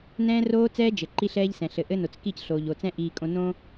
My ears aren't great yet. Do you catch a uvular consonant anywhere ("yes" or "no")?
no